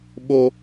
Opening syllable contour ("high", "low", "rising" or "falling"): high